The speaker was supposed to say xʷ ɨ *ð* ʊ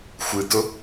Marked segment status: incorrect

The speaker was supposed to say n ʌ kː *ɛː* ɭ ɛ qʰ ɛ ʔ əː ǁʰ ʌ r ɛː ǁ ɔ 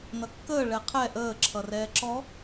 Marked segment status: incorrect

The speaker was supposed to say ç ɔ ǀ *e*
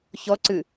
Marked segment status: incorrect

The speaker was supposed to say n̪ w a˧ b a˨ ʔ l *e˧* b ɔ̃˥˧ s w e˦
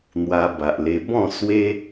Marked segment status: correct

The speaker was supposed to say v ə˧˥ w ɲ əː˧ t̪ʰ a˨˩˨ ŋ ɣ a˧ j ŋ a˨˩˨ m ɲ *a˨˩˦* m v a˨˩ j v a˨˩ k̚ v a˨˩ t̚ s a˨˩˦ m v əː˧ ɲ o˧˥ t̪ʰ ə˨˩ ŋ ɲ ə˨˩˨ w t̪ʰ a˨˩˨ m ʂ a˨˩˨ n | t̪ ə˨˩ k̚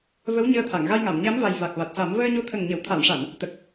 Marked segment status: incorrect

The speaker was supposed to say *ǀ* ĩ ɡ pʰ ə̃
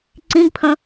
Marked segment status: correct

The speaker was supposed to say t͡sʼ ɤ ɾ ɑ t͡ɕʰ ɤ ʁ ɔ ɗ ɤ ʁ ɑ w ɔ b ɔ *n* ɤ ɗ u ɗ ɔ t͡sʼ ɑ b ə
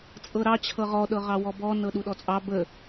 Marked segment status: correct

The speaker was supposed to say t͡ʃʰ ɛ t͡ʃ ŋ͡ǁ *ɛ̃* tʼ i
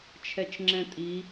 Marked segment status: correct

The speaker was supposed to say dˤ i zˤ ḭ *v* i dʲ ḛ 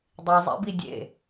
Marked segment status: incorrect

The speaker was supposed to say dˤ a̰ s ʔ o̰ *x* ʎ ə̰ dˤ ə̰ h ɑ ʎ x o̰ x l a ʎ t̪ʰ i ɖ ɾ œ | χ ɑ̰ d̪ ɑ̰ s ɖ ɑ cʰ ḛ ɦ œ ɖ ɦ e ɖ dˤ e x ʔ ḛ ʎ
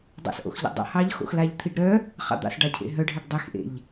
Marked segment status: correct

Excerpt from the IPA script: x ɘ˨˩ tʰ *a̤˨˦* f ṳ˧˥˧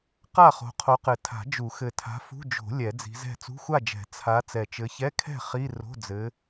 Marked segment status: correct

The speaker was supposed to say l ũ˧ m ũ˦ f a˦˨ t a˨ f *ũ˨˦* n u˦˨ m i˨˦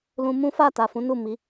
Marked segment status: correct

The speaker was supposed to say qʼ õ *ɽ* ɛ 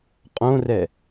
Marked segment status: incorrect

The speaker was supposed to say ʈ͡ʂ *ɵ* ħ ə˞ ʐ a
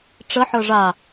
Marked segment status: incorrect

